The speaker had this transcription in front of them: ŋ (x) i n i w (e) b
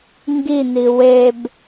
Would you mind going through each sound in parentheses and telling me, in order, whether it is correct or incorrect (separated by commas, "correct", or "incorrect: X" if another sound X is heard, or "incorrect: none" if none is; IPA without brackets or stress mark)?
incorrect: ɡ, correct